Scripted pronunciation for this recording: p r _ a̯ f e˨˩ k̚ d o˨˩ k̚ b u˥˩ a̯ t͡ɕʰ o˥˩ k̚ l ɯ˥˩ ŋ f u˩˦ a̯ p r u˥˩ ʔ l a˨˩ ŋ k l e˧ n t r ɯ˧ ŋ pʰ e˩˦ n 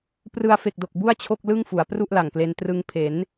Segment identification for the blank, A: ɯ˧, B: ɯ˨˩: A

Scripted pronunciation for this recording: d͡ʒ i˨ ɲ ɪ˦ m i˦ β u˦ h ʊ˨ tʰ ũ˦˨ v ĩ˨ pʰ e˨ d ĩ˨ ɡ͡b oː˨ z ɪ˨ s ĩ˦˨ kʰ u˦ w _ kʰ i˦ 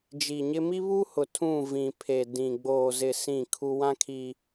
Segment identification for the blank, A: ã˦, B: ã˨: A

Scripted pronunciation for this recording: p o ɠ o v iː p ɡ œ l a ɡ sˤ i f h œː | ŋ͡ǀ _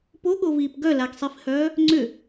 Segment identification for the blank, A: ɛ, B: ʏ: B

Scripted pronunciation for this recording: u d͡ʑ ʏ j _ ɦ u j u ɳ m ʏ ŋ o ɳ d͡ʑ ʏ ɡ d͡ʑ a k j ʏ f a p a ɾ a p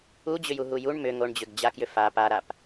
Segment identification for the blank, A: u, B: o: A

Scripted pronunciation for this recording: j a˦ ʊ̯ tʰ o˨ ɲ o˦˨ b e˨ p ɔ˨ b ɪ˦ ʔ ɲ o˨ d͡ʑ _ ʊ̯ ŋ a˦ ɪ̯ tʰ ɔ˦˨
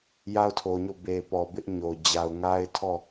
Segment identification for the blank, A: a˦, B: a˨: B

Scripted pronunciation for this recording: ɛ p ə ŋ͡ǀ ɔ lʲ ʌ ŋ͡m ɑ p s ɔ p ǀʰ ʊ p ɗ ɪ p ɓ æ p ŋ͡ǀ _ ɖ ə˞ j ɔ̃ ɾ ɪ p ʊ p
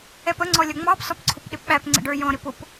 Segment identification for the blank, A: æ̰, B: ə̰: B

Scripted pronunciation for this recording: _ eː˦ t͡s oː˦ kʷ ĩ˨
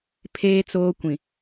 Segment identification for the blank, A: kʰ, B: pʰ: B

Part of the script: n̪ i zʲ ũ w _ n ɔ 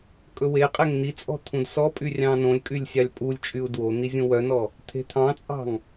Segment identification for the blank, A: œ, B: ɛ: A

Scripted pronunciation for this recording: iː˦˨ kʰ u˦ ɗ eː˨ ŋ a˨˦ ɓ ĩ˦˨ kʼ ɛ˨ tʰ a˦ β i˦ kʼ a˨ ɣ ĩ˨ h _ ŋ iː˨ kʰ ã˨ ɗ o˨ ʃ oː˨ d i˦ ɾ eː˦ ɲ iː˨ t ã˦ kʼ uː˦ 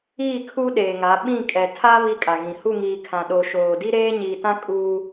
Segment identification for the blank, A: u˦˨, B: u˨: A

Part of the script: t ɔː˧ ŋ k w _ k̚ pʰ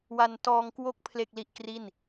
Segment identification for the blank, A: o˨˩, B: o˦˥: B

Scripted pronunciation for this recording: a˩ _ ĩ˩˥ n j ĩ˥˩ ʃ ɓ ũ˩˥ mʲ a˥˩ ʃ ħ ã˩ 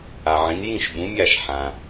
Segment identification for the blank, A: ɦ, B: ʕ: B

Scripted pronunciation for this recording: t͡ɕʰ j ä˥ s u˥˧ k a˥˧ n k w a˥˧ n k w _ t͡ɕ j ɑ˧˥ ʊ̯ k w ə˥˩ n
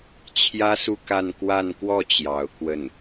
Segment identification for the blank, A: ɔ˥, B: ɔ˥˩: B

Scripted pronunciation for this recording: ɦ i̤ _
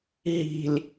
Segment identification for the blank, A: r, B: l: B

